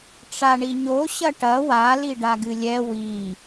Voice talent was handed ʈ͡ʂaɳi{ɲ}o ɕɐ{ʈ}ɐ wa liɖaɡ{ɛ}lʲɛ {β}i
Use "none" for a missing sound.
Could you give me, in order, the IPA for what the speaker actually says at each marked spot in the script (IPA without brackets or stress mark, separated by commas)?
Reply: ɲ, ʈ, ɨ, w